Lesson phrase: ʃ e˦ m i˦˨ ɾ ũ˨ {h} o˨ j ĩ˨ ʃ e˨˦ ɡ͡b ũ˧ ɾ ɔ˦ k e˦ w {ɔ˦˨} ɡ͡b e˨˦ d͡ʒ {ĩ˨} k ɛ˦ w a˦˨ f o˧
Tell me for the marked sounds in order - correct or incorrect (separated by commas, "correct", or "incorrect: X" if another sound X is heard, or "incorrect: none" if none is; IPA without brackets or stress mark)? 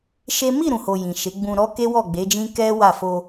correct, correct, incorrect: ĩ˦